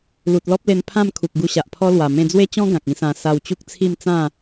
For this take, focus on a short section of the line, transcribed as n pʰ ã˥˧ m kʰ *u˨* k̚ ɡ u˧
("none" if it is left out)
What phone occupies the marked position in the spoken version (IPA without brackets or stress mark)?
u˨